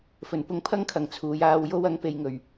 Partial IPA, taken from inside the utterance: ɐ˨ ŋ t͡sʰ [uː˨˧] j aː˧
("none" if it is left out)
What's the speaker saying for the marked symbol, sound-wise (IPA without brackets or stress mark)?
uː˨˧